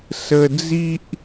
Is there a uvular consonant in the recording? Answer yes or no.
no